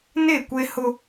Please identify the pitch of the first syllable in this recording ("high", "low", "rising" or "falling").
falling